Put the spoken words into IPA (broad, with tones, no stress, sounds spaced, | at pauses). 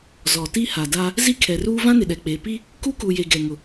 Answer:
z ɔ˨ t i˦ h a˨ d a˦ | z i˦ kʰ ɛ˨ r uː˦ v ã˦ n ɪ˨ ɗ ɛ˨ k͡p e˨ p i˦ | k u˦ k u˨ j e˨ ɡ ɛ˨ ŋ ʊ˨